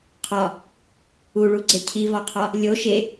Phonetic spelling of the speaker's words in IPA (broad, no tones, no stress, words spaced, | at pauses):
qʰɒ | uɭuɡ͡ǀe cʰivɒqʰɒ | lʲo ʃe